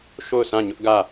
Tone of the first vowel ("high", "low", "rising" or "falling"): falling